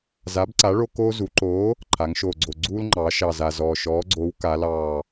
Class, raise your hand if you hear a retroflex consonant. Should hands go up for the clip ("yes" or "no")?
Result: yes